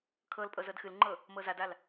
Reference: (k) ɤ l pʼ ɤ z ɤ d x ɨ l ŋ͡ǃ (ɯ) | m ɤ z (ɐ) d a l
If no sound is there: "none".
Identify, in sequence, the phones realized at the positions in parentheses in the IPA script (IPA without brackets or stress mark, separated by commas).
kʰ, ɤ, a